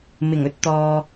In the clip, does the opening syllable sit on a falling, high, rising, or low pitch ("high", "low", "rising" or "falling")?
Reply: low